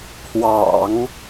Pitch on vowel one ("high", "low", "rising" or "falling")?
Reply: low